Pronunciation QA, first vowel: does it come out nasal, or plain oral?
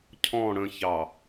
nasal